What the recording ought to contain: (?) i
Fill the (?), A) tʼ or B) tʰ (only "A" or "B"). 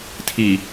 B